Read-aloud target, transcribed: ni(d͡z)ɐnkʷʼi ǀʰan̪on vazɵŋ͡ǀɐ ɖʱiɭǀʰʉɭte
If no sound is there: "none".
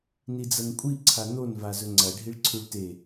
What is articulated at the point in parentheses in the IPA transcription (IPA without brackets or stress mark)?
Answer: d͡z